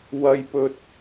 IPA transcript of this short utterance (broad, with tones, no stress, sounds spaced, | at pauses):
w ɐ˧ j p ɵ˧ t̚